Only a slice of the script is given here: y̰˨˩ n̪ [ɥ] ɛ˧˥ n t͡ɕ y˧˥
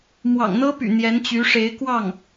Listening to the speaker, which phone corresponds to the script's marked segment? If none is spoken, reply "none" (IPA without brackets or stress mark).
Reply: j